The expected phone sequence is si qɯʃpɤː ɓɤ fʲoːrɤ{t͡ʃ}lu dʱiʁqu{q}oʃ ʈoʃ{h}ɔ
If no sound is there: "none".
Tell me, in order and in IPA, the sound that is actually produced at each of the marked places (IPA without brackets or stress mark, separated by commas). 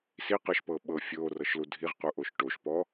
ʃ, ʔ, p